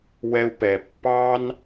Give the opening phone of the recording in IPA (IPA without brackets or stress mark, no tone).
w